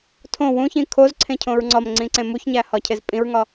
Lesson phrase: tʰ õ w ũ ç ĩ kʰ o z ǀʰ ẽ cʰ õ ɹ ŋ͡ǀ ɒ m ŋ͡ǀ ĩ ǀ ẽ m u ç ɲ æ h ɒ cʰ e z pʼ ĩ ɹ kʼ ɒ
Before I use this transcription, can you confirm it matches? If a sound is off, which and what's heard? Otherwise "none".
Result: kʼ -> ŋ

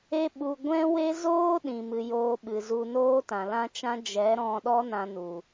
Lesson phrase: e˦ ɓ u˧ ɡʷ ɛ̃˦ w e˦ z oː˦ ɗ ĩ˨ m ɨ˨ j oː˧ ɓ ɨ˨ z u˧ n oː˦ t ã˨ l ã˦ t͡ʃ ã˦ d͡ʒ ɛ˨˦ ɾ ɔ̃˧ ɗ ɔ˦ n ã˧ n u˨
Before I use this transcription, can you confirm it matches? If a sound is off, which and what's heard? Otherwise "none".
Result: none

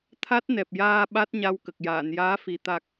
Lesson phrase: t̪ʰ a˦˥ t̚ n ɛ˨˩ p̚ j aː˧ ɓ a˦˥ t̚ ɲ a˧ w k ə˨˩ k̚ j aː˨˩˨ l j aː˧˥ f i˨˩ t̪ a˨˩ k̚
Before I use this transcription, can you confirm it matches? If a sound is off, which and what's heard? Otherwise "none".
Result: l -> n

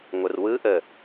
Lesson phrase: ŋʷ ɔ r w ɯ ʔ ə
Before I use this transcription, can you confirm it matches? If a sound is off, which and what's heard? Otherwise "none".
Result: ɔ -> ə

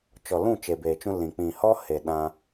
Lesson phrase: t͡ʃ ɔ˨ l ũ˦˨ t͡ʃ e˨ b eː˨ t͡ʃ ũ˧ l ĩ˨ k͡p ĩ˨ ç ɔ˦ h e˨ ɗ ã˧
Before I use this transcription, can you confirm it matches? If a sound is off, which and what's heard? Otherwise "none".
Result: ç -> h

